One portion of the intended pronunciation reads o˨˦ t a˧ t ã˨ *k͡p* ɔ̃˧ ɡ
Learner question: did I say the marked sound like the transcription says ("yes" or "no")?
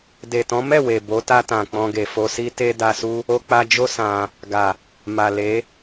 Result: yes